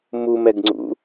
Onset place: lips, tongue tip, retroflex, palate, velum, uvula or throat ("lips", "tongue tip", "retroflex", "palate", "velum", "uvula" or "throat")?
lips